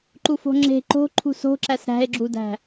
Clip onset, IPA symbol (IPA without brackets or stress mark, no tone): ǃ